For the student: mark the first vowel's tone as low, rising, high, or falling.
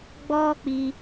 high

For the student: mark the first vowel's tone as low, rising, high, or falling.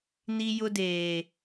high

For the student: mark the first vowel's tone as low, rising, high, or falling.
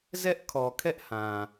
high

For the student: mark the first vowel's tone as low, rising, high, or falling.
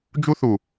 high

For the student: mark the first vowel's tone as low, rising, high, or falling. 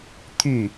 falling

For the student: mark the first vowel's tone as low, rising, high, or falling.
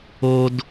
low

